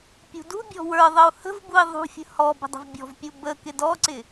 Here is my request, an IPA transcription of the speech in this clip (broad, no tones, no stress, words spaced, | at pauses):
pʲṳdṳbʲɔ̤ wə˞ðˤəu̯ hə̤vbui̯ ðˤṳfʲə̤ hɔ bə̤dˤə̤vbʲɔ̤vpʲu bə kɪdɔǀɪ